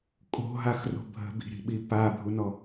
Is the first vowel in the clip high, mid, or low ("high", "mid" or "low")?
mid